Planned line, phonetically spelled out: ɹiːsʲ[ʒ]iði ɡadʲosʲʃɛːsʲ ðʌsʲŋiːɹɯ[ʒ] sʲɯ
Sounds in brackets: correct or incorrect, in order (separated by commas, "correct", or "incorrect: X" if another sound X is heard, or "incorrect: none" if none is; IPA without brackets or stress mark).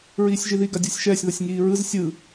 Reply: correct, incorrect: z